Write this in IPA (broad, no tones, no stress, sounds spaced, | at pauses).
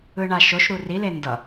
ɯ ɳ a ʃ o ʃ ɾ u r i l e n d ʌ